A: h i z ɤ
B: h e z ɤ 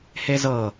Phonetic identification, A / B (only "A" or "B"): B